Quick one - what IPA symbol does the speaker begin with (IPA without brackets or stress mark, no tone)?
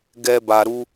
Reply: ɡ